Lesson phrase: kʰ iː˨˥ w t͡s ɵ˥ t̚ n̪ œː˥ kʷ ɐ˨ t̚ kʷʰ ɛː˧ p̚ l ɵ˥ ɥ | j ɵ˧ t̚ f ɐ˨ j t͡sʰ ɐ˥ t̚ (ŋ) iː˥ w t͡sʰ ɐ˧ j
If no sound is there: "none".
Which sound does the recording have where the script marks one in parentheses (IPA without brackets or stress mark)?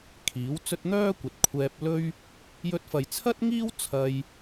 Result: ŋ